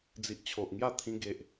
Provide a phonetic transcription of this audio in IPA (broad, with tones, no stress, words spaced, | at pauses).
d͡zi˨ʔt͡ɕʰo˨ʔŋja˥˧ t̪ʰĩ˧ɡe˨ʔ